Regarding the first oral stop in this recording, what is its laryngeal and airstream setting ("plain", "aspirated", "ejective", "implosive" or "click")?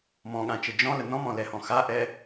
implosive